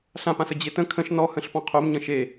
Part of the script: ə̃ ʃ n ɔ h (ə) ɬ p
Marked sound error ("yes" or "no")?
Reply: yes